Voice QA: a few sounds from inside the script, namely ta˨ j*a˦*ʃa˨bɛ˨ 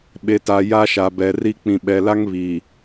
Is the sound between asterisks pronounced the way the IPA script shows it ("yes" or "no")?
yes